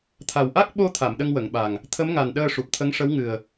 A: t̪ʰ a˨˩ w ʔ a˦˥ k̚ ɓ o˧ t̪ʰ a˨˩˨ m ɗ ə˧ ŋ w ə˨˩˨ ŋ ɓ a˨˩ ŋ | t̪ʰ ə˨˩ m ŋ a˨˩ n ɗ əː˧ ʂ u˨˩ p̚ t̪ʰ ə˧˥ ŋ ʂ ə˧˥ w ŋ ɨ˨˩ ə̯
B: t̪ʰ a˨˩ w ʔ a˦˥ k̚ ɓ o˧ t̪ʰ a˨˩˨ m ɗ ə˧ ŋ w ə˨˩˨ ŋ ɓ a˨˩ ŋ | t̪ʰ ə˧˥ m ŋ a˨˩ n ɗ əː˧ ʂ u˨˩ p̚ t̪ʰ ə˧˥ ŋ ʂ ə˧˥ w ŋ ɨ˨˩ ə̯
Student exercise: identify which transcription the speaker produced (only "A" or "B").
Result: B